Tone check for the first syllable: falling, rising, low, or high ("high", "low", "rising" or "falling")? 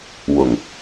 low